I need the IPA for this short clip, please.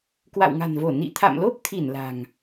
k w a̰˧˨ w ŋ a̤˨˩ n v o˧˩ n ḭ˧˨ t̪ʰ a̰˧˨ m l o˦˥ p̚ t̪ʰ i˧˩ n l a̤˨˩ ŋ

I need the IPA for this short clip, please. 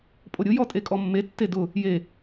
pʼ o ɾʲ ʊ j ɔ tʼ e kʼ ɔ mː e tː e d ʊ | j e

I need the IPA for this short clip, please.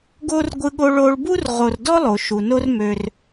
ɡ o˥ r ɡʷ ɯ˦ ɠ o˦ ɭ o˦ ɭ b u˥ r ʁ o˨ r d ɔ˥ lˠ o˩ ʃ u˩ n o˦ r m ø˨ r

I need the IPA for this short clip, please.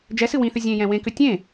d͡ʒ ɛ s ɨ w ĩ θ ʏ zʲ ẽ j ɛ̃ w ẽ k ʏ tʲ ẽ

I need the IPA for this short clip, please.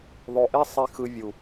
ðˤ o˨ ʔ e˧ sˤ i˨ x ɯ˨ vʲ u˨

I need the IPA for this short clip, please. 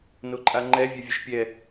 n o ǃʼ a ŋ͡ǃ ɛ vʲ œ vʲ œ ʃ pʲ ɛ

